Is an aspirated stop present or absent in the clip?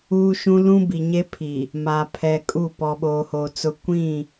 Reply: present